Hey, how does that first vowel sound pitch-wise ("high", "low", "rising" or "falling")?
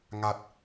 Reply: low